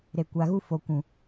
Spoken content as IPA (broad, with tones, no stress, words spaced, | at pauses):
ɾe˨kʷa˨ɣu˦ fo˨kʷũ˨